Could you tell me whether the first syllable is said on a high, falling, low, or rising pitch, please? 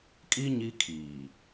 high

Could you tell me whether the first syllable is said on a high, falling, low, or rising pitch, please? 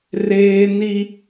high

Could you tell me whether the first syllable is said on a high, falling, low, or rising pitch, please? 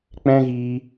high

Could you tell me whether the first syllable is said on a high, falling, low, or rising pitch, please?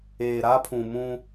low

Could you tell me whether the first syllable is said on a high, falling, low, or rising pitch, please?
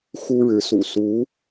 high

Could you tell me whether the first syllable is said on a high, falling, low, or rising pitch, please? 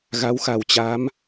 rising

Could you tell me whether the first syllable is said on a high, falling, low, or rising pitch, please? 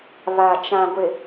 low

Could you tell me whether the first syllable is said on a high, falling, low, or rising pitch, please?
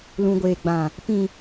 low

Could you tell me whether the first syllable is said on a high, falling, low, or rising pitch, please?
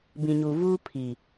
low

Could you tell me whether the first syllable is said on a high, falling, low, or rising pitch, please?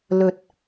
low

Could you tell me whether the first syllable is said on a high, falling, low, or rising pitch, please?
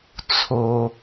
low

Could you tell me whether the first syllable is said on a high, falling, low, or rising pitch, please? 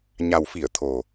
low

